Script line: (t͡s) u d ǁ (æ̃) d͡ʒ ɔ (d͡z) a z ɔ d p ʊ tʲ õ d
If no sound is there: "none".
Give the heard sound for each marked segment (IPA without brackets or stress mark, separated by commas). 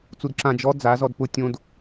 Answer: t͡s, ã, d͡z